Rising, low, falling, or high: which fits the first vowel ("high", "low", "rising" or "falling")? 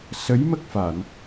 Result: rising